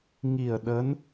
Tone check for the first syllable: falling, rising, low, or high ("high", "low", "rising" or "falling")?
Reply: low